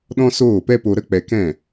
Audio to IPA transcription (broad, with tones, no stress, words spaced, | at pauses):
ɗɔ̃˦soː˦˨pɛ˦po˧ ɾə˦k͡pɛ˧kɛ̃˦˨